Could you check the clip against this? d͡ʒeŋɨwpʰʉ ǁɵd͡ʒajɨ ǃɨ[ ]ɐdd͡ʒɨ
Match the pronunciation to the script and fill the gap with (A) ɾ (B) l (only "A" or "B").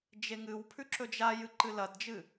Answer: B